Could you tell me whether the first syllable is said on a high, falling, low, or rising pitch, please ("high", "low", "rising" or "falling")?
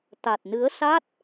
low